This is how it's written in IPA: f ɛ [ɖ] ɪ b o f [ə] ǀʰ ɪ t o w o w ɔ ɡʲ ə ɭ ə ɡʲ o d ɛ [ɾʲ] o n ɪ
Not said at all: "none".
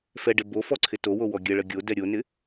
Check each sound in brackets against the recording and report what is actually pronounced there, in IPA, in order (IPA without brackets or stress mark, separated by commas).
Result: ɖ, ɔ, ɾʲ